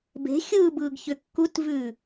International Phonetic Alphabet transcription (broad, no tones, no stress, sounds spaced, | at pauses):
b e̤ xʲ ɯː b ɯː ɡ ç ʏ kː u t v ʉː